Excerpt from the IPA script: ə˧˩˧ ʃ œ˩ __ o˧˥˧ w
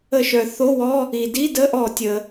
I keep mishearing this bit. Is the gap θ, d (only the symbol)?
θ